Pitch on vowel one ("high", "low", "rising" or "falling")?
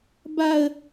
high